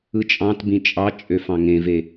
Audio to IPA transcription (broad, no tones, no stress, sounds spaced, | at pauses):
ɯ t͡ʃʼ ɑ̃ t b ĩ t͡ʃʼ ɑ t͡ʃʼ ø f ɑ̃ ŋ ẽ v e